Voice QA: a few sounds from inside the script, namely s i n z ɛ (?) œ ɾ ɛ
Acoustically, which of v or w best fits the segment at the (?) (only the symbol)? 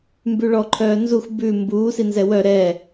w